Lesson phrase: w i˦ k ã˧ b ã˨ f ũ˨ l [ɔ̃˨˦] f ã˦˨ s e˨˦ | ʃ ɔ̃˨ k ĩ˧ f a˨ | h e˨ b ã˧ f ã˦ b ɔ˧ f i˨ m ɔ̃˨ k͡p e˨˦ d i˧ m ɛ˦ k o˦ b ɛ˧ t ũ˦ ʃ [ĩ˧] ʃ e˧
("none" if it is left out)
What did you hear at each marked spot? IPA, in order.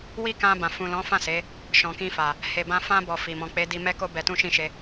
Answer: ɔ̃˨˦, ĩ˦˨

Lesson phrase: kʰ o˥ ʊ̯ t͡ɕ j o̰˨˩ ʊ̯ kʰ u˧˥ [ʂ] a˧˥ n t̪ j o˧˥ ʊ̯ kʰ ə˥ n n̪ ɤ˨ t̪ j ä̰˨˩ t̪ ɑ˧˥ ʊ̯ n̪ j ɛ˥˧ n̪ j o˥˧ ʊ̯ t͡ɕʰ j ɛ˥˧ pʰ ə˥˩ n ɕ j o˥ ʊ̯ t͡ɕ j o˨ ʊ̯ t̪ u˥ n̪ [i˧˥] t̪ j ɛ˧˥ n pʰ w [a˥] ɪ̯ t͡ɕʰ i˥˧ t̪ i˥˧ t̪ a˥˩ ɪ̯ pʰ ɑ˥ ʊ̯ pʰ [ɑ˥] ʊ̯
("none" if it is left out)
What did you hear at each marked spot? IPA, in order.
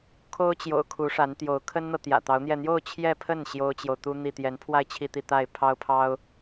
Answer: ʂ, i˥˩, a˥˧, ɑ˥

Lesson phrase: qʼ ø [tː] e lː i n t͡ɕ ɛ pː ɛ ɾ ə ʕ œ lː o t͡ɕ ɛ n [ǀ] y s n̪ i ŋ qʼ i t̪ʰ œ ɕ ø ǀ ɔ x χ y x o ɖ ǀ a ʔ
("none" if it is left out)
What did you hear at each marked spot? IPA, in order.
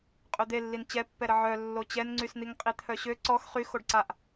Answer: d̪, ŋ͡ǀ

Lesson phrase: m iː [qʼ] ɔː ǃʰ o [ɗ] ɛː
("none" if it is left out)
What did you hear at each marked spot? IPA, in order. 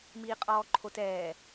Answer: qʼ, t

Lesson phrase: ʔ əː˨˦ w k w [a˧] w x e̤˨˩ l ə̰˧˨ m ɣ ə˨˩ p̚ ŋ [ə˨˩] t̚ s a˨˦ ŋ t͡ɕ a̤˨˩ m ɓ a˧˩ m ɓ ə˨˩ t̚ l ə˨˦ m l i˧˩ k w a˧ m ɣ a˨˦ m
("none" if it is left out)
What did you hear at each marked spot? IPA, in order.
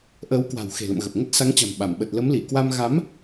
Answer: a̤˨˩, ə˦˥

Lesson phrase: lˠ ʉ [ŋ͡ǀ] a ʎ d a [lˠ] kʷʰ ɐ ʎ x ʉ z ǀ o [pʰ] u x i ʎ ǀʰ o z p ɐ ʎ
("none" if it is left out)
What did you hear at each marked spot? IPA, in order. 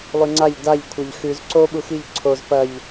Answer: ŋ͡ǀ, ʎ, ɓ

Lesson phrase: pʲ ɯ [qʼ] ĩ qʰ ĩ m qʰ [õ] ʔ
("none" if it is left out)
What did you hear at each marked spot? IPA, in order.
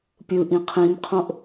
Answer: ʔ, õ

